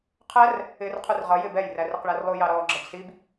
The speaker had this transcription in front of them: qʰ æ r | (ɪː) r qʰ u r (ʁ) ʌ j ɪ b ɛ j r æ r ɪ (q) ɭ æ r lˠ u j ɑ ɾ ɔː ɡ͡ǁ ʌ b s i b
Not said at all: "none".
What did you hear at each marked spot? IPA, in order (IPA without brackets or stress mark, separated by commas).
ɪː, ʁ, q